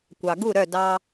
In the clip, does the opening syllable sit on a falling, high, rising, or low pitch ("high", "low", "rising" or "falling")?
low